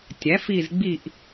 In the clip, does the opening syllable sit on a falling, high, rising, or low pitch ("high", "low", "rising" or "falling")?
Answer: rising